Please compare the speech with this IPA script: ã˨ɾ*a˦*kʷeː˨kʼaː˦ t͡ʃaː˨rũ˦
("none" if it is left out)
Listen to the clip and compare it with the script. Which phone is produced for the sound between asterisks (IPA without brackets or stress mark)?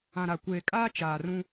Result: a˨